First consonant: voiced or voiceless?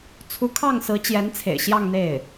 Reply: voiceless